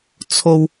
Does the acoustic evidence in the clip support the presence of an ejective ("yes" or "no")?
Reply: no